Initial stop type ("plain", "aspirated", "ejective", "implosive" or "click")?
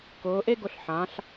plain